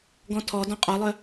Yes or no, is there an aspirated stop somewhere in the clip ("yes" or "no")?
yes